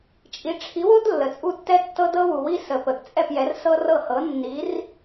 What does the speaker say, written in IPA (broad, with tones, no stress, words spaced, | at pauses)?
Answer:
t͡ʃʼi˨˦ ʈ͡ʂʰi˨˦wo˦d lːə˨t͡sʼu˦˨ tːɛ˦tːɤ˦ dɤ˦wu˨wi˦ sə˨pə˨ɡ t͡sʼɛ˦˨pjɛ˨˦rsɤ˦rɤ˦˨ hɤ˨˦ nːi˨˦r